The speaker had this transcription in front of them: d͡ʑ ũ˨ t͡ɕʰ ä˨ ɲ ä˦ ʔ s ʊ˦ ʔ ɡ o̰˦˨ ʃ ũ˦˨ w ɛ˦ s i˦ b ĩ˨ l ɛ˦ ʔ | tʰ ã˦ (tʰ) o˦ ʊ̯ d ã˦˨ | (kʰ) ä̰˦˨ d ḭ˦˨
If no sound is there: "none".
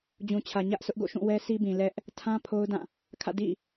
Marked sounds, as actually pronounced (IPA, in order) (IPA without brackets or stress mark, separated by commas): pʰ, kʰ